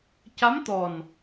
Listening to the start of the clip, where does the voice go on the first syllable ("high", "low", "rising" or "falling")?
rising